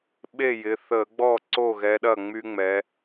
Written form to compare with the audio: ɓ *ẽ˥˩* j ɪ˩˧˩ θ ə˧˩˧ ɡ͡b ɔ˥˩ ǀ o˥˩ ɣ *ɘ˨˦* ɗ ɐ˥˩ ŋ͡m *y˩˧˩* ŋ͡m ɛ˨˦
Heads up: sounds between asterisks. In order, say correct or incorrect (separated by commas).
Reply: incorrect, incorrect, incorrect